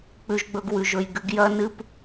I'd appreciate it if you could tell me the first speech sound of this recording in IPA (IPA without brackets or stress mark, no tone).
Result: k͡p